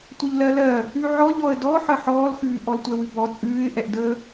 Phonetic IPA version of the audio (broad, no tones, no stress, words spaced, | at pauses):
tʷəʎlɜlɜ | ʉʕɔʎɔə̯ dɔħə ħɔːlxʉː ʔɔltʷɛwʉbɔ t͡sʼʉːɪ̯ʔɛʔdəː